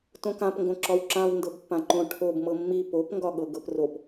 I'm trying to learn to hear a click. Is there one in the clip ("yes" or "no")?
yes